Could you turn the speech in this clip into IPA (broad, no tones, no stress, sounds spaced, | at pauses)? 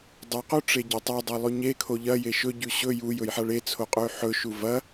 dˤ u q o ʈ͡ʂ e ɟ ɐ tˤ e dˤ a lˠ ʉ ɲ e kʰ o ʎ ɐ j e ʃ ɵ ɟ ʉ ɕ ɵ j u j ɵ j ħ a ɭ e t͡sʰ o qʼ ɵ y̯ ħ ɵ ʃ u v ɐ